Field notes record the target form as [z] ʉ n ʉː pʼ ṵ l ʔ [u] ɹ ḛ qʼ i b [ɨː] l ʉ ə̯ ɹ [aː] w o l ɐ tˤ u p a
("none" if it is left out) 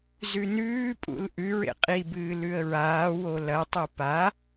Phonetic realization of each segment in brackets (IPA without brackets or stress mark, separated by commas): z, ʉ, ɨː, aː